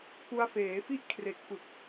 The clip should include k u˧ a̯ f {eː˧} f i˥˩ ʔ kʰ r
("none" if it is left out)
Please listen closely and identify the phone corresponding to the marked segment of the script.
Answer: eː˩˦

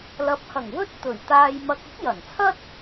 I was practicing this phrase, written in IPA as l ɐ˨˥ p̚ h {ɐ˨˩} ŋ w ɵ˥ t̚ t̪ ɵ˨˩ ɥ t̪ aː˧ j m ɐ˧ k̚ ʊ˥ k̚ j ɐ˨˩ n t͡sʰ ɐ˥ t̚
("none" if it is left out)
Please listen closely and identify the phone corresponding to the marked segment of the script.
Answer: ɐ˨˩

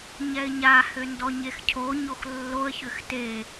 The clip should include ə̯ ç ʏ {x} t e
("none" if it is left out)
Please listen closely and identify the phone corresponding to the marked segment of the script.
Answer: x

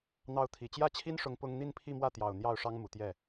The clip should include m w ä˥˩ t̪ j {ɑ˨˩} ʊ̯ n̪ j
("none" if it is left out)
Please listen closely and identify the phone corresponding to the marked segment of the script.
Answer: ɑ˨˩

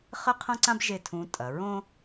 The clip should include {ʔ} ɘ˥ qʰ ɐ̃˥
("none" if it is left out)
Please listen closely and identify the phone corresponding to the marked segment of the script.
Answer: χ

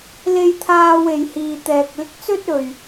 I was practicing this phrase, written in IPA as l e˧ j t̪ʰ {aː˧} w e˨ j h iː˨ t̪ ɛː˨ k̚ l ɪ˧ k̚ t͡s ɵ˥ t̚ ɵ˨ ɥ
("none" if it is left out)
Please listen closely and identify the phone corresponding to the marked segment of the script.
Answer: aː˧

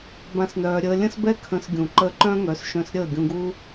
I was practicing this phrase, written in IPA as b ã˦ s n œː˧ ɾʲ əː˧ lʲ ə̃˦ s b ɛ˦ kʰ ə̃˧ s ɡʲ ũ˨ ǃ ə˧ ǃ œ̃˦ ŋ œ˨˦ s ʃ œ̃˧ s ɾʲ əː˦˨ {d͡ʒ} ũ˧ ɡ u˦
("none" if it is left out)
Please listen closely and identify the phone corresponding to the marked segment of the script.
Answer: ɡʲ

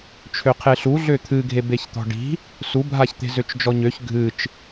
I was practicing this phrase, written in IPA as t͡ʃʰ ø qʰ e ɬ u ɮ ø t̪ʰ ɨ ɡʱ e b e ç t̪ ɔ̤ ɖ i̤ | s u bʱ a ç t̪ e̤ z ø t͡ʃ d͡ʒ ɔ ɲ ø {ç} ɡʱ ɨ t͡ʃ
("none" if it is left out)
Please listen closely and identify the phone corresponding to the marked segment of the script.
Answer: ç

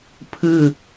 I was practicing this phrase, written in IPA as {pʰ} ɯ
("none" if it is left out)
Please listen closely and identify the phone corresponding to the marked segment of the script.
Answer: pʰ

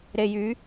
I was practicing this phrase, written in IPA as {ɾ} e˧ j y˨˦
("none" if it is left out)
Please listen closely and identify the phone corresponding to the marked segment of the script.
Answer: ɾ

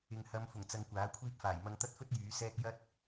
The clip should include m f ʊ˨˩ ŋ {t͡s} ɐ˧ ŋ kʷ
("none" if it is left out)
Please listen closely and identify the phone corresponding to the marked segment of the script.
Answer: t͡s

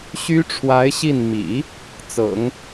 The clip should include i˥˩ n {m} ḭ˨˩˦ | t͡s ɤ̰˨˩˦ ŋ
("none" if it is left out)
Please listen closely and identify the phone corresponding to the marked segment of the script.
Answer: m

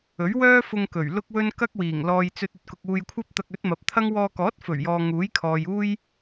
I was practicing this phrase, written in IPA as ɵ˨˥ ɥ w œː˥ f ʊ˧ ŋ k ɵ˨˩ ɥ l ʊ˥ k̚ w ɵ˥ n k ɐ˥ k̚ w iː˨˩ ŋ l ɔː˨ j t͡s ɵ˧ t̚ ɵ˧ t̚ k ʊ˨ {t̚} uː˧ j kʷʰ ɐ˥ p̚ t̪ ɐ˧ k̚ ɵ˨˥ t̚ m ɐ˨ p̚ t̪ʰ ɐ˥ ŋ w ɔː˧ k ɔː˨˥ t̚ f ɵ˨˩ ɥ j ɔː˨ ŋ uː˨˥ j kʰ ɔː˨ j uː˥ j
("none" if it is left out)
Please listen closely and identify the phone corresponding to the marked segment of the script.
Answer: k̚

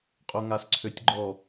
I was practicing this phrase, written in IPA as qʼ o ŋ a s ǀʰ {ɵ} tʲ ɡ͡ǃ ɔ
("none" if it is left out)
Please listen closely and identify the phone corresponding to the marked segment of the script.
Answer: ø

